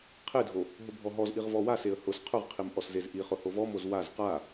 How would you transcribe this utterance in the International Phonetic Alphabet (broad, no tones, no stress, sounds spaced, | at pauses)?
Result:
qʰ e dʱ o | ɦ ʊ bʱ ɔ ɦ ɔ z ʔ i ʁ v ɔ w a s e ə̯ h ʊ s qʰ ʊ ʁ qʰ i m ʔ ɔ s z e z ʔ i χ ʊ h o v ɔ m o z w a z q a